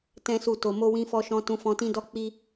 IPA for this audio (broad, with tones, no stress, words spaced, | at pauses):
tɛ̃˦su˦˨to˧ mo˧wĩ˧fɔ˧ʃɔ̃˧ tũ˧fɔ̃˧tĩ˦dɔ˦ k͡pi˦